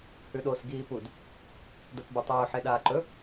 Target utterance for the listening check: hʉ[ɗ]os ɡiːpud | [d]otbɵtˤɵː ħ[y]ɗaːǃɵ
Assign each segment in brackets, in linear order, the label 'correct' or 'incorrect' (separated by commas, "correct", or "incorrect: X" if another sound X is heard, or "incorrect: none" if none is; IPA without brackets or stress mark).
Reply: correct, correct, incorrect: e